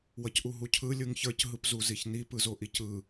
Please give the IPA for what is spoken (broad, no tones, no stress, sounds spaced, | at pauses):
w ʌ c ʔ u ɦ u cʰ ɯ lʲ ɯ ŋ ç ə˞ c ɦ ɯ p z u z i ç n i p ɯ z o ʔ i c ɯ